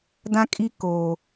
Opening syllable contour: high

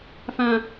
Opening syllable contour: low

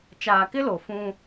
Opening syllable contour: low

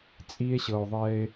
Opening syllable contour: low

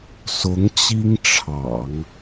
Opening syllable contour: rising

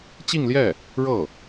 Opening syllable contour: falling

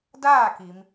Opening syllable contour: falling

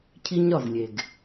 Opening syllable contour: high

